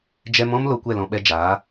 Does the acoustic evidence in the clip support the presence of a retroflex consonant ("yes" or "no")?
no